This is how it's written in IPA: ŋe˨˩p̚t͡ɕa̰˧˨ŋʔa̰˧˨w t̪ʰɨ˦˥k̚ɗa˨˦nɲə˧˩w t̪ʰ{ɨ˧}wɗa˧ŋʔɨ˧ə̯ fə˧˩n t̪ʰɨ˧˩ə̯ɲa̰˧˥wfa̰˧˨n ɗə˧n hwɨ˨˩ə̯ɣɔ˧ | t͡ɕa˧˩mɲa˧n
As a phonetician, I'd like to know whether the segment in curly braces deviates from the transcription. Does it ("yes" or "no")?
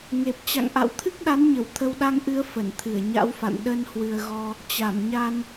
yes